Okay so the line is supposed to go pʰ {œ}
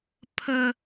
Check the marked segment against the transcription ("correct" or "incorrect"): incorrect